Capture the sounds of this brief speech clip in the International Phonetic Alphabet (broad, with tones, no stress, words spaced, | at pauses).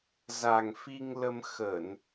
za˨˩ŋ fi˧ŋ lə˧mxə˧˩˨n